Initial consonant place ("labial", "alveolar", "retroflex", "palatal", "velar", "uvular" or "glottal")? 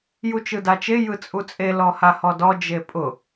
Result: palatal